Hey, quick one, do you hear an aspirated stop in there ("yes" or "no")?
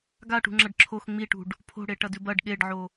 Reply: yes